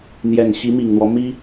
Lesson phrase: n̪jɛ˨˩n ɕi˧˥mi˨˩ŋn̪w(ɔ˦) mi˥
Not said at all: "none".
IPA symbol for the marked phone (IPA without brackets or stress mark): ɔ˦